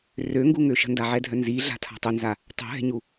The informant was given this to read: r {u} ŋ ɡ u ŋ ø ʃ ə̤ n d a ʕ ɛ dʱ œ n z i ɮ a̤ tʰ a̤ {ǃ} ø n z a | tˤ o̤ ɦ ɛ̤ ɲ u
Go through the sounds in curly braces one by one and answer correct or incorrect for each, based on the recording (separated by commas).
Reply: incorrect, incorrect